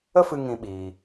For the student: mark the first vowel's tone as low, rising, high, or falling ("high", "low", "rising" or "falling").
high